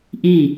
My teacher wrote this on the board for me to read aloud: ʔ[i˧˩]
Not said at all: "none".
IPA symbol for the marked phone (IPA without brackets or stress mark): i˧˩